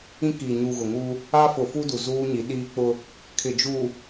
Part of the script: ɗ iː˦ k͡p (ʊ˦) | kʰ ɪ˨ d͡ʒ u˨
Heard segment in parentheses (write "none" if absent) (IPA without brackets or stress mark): ʊ˦